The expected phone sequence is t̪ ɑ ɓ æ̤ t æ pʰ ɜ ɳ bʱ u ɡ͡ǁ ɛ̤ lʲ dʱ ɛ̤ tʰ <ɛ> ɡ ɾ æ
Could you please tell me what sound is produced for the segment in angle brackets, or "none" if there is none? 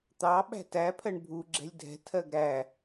ɜ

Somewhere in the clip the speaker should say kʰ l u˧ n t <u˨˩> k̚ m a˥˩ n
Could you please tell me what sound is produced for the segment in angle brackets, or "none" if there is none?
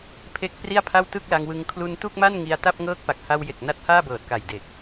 u˥˩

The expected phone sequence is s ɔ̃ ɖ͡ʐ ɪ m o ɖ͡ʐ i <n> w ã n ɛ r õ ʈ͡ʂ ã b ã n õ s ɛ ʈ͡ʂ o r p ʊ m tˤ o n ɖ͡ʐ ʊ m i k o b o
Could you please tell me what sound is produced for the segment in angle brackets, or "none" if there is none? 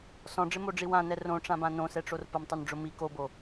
none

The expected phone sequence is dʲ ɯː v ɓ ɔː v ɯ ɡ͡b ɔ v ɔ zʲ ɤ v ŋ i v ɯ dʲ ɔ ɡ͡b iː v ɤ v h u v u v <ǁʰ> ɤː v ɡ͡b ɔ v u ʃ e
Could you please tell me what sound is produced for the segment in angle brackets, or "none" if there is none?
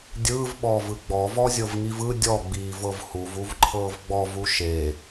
ǃʰ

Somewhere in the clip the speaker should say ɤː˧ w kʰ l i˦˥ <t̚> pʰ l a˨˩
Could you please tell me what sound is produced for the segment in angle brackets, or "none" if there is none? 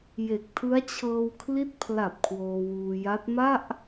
t̚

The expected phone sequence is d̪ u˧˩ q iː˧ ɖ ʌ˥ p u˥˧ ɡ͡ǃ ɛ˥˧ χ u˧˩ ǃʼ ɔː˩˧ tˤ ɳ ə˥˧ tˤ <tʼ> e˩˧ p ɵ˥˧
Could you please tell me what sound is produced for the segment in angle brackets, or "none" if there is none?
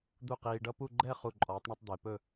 d̪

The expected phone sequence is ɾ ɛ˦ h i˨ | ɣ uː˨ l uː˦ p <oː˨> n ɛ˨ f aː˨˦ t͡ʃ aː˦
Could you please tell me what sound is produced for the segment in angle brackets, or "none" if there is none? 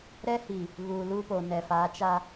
o˨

